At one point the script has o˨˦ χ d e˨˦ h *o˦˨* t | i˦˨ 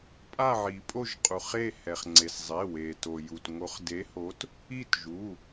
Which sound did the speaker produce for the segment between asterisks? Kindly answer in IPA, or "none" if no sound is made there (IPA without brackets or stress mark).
o˨˦